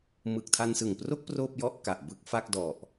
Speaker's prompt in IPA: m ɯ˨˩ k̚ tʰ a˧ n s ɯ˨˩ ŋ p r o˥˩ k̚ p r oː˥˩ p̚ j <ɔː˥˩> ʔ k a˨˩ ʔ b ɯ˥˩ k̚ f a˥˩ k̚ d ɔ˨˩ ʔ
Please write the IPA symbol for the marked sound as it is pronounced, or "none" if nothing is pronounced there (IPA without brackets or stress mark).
ɔ˥˩